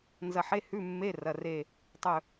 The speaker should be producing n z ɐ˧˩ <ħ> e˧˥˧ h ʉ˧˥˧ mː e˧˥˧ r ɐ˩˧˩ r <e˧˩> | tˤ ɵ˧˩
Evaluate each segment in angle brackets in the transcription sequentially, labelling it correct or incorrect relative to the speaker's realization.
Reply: correct, correct

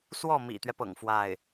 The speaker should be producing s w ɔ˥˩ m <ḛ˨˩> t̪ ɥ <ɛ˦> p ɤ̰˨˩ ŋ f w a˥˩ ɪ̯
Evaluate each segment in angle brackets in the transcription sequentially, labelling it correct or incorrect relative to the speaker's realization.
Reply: incorrect, correct

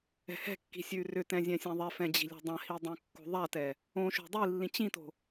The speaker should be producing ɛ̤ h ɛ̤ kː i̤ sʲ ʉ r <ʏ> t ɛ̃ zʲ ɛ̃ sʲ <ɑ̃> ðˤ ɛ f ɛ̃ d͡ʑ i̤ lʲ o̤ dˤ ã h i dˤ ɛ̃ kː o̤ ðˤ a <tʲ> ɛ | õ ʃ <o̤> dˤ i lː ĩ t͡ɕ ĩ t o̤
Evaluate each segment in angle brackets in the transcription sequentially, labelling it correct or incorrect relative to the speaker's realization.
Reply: correct, incorrect, incorrect, correct

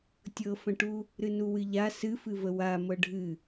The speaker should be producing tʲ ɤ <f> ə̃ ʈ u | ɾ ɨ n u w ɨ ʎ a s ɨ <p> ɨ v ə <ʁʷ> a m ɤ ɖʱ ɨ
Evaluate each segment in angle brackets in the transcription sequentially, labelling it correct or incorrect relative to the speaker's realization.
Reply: correct, incorrect, incorrect

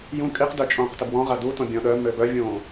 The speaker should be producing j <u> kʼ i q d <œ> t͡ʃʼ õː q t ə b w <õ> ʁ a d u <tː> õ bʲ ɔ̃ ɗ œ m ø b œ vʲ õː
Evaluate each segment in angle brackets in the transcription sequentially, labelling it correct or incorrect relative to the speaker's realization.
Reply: incorrect, correct, incorrect, incorrect

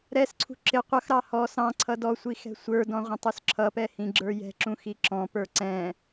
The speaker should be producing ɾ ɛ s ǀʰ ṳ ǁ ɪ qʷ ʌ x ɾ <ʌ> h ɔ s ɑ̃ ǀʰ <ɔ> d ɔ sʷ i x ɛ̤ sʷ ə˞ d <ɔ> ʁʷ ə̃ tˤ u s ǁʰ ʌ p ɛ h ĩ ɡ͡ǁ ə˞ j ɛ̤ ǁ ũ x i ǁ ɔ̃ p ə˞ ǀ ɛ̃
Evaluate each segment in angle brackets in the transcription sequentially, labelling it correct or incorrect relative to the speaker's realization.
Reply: incorrect, incorrect, incorrect

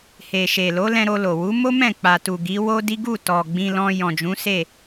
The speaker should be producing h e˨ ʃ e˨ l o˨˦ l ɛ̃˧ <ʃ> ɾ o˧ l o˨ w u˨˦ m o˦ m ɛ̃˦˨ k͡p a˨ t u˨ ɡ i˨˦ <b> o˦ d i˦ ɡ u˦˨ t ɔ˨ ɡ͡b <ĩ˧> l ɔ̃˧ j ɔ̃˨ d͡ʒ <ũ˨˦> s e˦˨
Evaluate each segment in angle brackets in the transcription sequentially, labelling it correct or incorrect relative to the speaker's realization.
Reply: incorrect, incorrect, correct, correct

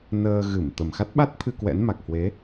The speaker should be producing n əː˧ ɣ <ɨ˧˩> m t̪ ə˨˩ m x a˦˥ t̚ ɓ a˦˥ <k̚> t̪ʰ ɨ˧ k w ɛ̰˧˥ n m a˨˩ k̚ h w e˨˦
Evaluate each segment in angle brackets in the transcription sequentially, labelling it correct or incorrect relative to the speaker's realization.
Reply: correct, incorrect

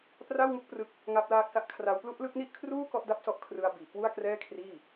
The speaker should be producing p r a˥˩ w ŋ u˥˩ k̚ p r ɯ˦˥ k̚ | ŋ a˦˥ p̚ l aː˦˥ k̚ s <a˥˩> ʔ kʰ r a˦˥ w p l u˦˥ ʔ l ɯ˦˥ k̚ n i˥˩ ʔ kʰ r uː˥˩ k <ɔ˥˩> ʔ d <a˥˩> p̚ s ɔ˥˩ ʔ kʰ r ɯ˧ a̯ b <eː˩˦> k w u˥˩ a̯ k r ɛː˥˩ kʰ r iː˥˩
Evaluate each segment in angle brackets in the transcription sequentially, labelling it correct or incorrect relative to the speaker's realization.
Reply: incorrect, correct, correct, incorrect

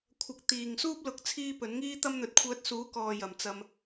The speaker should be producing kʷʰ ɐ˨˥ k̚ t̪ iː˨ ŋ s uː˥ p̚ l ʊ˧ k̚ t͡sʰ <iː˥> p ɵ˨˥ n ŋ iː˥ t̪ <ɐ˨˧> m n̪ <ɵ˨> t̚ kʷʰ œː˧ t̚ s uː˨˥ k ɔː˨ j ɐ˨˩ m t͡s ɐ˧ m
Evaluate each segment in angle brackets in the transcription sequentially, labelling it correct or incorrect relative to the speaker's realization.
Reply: correct, incorrect, incorrect

